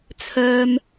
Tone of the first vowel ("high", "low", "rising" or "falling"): low